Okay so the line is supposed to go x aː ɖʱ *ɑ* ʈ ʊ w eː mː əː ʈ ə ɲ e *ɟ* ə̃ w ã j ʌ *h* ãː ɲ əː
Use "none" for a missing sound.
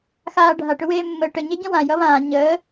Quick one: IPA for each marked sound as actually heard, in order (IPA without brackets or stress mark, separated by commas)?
a, ɟ, β